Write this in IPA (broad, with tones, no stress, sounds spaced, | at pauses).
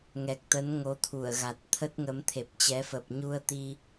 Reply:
ŋ ɛ˨˩ k̚ t̪ ə˨˦ n ŋ o˨˦ t̪ʰ u˧˩ ə̯ ɣ a˨˩ t̚ t̪ʰ ə˦˥ t̚ ŋ ə˨˦ m t̪ʰ e˨˩ p̚ t͡ɕ ɛ˨˦ f ə˨˩ p̚ ɲ u˧ ə̯ t̪ i˧